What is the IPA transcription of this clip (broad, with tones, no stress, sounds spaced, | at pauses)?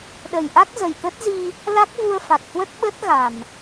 ɗ ə˨˩ j ʔ a˦˥ k̚ z ə˨˩ j t̪ ə˦˥ t̚ z i˧ | l a˦˥ k̚ v u˧ ə̯ f a˨˩ k̚ h w ə˦˥ t̚ ɓ ə˦˥ t̚ ɣ a˨˩ m